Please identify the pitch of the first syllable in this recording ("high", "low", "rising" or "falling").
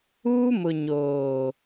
high